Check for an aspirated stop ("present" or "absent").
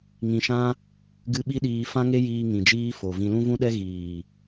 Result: absent